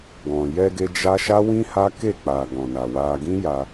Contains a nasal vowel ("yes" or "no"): yes